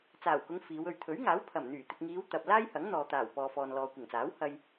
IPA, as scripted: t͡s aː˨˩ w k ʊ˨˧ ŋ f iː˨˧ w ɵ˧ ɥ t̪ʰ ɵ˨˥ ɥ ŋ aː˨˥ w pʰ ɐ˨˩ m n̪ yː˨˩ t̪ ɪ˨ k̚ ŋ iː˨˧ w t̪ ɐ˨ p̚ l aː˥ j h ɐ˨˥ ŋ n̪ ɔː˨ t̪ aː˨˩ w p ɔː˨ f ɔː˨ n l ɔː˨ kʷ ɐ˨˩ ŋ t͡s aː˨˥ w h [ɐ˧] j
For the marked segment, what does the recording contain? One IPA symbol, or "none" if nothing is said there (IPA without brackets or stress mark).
ɐ˧